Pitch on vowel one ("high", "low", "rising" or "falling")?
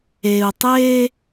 low